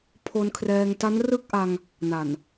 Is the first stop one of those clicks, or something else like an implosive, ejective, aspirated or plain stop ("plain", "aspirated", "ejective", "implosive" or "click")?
aspirated